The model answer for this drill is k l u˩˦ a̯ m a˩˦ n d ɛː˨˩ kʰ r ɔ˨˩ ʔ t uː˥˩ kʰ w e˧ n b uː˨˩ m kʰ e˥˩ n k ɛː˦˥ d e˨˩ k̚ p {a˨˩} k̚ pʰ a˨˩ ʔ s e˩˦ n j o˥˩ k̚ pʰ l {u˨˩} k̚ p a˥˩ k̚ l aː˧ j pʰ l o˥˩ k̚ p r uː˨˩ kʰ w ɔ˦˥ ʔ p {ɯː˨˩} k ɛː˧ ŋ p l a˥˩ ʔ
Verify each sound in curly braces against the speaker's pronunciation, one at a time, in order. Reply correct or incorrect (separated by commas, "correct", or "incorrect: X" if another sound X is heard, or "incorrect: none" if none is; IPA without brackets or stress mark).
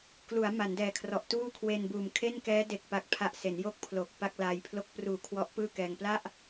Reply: correct, incorrect: o˨˩, incorrect: ɯː˥˩